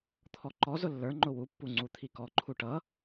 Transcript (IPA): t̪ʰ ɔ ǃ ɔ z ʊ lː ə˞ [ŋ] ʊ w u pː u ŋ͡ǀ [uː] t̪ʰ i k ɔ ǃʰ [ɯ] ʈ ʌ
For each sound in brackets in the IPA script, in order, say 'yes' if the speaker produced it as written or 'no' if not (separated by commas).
no, no, no